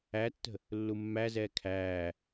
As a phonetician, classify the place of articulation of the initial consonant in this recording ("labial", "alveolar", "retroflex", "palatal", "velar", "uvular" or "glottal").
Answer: alveolar